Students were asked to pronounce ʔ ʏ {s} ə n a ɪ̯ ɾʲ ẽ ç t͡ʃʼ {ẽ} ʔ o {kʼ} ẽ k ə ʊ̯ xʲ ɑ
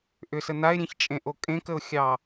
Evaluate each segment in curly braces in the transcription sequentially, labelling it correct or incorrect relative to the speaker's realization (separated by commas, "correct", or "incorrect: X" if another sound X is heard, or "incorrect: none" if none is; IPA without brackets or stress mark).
correct, correct, correct